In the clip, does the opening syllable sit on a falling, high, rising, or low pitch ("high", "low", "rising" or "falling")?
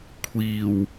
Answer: low